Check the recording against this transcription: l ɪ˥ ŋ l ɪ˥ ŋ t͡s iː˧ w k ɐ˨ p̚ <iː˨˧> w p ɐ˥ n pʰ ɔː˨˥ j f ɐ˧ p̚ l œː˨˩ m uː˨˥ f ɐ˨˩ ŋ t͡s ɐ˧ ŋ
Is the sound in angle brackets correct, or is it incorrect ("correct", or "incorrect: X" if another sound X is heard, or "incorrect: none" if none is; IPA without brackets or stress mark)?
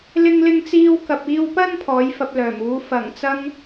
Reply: incorrect: iː˧